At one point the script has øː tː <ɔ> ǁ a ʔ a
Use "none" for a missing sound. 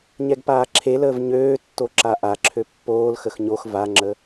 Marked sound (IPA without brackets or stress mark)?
o